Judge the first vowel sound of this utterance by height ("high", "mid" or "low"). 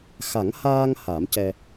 low